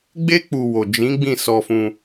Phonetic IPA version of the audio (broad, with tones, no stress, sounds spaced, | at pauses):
ɡ͡b e˦ k͡p u˧ w o˨ d͡ʒ ĩ˨˦ ɡ͡b ĩ˦˨ s ɔ˧ f ũ˧